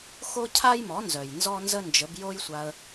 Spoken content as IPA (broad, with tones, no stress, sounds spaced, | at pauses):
x o˦ cʰ a˦ j m ɔ˨˦ n z œ˨ j n z ɔ˦ n z ə˦ n d͡ʒ ə˨˦ b j o˦ j sʷ a˧ ə̯